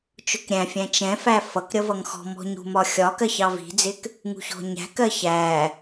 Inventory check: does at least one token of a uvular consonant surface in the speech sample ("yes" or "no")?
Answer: no